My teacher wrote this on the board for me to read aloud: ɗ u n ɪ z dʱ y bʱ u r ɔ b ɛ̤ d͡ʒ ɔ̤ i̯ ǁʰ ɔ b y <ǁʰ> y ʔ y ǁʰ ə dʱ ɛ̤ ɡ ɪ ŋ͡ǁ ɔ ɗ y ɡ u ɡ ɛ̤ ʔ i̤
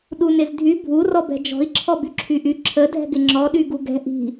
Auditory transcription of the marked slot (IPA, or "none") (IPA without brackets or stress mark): ǁʰ